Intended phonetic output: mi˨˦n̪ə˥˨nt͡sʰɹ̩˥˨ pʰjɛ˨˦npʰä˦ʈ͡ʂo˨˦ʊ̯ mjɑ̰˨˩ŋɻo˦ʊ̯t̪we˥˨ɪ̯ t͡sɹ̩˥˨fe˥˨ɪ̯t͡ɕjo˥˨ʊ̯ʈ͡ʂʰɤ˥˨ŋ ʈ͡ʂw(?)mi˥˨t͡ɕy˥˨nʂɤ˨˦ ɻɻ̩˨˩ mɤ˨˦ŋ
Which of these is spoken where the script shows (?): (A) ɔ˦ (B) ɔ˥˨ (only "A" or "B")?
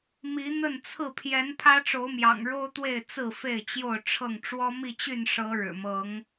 A